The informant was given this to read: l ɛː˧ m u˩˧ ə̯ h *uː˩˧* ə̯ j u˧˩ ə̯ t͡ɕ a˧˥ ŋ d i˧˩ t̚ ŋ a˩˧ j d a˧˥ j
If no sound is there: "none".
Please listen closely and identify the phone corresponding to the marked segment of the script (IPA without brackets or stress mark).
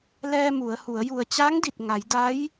u˩˧